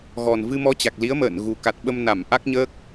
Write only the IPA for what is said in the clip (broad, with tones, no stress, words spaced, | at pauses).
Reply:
ɣɔ˨˩nvɨ˧mɔ˧t͡ɕa˨˩k̚ li˨˦ə̯ mə̰ː˧˨n ɣu˨˩ka˨˩t̚ɓə˧m na˧˩mʔa˦˥k̚ɲəː˦˥k̚